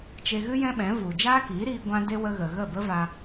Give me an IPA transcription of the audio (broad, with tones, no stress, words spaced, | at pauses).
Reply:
t͡ʃe˧ɣɨ˦ jɛ̃˦ɓɛ̃˨˦ vu˨ d͡ʒaː˦kiː˨˦ɾiː˧ ɡʷã˧ de˦ wə˧ɣə˨ ɣə˦˨bə˦va˧